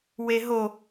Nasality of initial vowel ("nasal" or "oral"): oral